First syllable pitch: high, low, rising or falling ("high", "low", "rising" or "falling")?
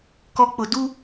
low